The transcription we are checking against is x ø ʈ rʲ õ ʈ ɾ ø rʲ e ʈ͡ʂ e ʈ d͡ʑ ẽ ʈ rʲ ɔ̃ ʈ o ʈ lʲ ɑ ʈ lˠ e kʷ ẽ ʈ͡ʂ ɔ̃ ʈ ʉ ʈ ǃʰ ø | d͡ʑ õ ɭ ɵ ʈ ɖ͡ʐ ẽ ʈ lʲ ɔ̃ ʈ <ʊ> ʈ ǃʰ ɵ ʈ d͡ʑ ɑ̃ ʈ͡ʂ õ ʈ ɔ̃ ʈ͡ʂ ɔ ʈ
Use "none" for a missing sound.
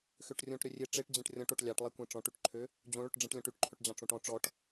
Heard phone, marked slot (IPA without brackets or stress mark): ʉ